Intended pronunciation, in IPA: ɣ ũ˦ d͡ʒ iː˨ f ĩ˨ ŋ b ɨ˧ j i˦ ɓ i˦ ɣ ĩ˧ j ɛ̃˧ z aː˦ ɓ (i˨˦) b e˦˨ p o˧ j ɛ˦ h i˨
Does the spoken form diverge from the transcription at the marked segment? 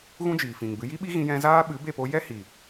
yes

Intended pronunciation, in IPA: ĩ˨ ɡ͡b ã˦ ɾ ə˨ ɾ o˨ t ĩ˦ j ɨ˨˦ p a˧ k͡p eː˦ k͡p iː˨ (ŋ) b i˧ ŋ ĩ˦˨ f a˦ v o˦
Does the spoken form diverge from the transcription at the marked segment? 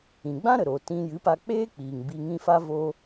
no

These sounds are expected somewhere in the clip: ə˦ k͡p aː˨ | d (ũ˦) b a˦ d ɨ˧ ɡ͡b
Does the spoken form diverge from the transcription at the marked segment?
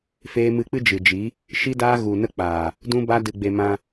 no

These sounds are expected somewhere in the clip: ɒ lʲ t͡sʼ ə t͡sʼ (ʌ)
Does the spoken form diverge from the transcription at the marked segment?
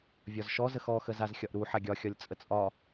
yes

